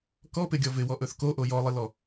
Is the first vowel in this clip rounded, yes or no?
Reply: yes